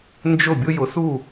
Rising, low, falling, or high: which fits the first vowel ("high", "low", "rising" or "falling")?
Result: falling